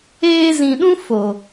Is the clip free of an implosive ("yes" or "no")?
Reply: no